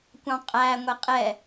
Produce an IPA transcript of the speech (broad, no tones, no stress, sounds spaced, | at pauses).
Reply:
kʷ ɑ̃ qʼ æ ŋʷ ɛ qʼ ɛ